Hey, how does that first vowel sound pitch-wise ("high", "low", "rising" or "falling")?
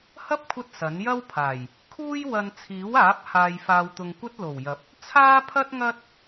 high